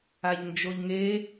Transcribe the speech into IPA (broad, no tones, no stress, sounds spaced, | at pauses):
a ʎ n d͡ʒ o ʎ ŋ e